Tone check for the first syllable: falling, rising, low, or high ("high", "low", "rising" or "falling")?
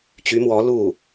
rising